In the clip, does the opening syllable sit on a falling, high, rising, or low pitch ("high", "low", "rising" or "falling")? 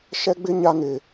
high